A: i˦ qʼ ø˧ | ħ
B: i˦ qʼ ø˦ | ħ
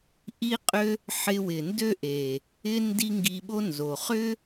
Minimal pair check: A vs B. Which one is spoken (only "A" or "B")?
B